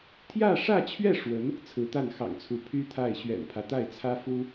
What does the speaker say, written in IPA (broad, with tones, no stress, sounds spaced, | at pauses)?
t̪ʰ j ä˥˧ ʂ ä˥˧ t͡ɕʰ ɥ ɛ˥˩ ʂ w ə˧˥ n | t͡sʰ ɹ̩˧˥ t̪ a˥˩ n x ɑ̰˨˩ ŋ t͡sʰ u˧˥ pʰ y˥ t̪ʰ a˥˩ ɪ̯ ɕ ɥ ɛ̰˨˩ n pʰ ä˦ t̪ a˥˩ ɪ̯ t͡sʰ ä˥ f u˥